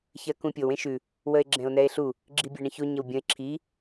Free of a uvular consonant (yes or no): yes